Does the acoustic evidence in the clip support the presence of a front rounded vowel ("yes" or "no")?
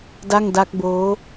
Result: no